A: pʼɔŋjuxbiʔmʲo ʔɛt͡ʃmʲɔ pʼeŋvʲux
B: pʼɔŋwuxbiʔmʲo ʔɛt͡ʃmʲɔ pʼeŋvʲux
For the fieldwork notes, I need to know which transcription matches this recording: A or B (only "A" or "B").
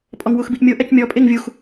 B